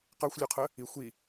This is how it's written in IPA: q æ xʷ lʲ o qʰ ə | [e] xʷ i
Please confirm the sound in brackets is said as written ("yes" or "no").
no